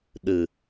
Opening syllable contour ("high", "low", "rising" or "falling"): low